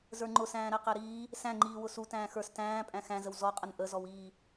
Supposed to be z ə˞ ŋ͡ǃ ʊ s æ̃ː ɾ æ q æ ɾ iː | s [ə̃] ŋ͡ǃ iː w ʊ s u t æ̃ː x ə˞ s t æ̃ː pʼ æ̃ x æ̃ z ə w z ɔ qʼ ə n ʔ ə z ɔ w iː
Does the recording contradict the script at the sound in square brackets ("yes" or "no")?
yes